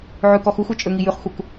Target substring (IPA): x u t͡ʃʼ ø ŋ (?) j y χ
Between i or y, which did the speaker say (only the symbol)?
i